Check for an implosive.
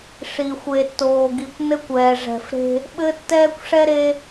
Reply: present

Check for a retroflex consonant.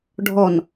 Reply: present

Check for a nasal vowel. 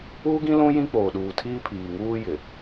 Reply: present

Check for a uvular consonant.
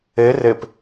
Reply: absent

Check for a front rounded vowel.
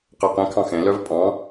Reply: present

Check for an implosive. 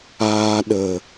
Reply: present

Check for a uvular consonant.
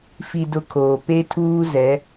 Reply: absent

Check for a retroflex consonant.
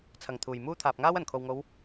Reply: absent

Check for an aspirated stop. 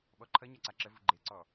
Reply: present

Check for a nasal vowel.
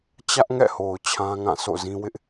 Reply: present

